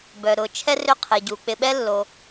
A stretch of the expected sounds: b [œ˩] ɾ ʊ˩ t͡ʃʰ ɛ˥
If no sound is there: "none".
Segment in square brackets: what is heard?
œ˩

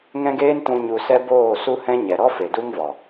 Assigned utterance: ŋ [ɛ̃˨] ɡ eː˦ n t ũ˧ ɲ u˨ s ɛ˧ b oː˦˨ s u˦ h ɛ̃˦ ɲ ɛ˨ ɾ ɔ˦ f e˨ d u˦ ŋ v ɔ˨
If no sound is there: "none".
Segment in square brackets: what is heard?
ɛ̃˦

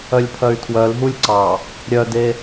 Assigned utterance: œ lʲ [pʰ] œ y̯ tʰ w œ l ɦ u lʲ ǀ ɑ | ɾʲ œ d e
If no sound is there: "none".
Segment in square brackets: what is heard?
pʰ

